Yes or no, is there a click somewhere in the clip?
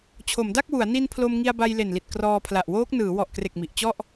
no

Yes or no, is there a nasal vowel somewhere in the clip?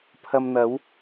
no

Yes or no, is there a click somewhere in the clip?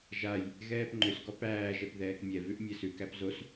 yes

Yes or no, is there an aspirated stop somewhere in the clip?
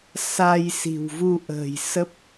no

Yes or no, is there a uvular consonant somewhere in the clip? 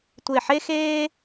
no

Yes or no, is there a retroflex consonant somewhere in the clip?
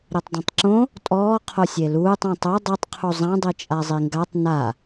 no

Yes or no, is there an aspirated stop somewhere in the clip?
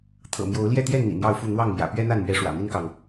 yes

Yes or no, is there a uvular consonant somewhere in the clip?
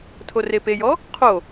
yes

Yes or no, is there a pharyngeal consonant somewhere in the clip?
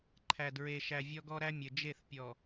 no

